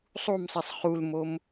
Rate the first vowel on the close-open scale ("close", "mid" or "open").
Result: close